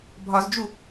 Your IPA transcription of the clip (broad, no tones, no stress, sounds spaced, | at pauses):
bʱ ɒ z d͡ʒ u